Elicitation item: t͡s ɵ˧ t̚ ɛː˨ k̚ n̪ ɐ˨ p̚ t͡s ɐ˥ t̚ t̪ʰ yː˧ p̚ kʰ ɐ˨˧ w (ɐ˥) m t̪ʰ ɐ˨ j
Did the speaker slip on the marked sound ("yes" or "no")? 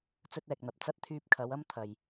no